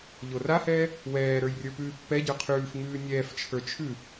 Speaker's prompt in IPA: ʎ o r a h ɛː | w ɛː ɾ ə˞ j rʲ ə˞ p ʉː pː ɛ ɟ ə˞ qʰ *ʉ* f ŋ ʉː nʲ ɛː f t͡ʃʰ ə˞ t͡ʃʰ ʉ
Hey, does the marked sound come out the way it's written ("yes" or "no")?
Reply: no